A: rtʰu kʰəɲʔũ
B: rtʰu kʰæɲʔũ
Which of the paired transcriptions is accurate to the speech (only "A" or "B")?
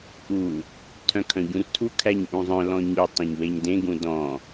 B